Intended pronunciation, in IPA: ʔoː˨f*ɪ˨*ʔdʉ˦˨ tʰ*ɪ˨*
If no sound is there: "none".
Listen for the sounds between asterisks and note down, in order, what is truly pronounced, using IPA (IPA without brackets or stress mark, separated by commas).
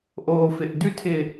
ɪ˨, ɪ˨